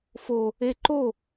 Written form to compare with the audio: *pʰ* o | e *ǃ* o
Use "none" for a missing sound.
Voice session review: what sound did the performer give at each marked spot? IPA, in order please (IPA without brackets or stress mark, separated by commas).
f, ǃ